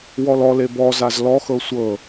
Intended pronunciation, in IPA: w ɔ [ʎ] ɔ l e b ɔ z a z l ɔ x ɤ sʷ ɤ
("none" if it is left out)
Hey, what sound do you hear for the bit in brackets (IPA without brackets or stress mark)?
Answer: l